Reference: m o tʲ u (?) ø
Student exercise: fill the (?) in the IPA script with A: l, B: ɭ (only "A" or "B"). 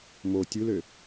A